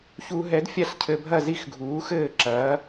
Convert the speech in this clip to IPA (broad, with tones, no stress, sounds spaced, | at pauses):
ç u˧ ɦ ɛ˨˥ d fʲ a˥˨ ɬ cʰ ɘ˧ bʱ ɐ˥˨ z i˥˨ x ɡʱ uː˨˥ x ɘː˥˨ ǁ ɐː˨˥